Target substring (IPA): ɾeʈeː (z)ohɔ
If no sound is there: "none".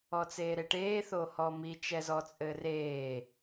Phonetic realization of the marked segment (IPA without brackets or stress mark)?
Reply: θ